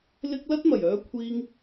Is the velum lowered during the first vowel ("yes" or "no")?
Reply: no